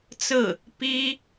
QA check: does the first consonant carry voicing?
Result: no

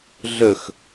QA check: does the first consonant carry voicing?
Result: yes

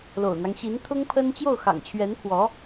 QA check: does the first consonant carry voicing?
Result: yes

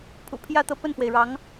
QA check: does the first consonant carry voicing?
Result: no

